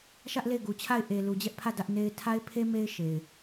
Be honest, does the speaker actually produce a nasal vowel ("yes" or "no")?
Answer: no